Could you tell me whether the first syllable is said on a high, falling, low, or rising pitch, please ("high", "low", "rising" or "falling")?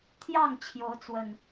falling